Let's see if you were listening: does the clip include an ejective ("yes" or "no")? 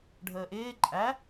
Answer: yes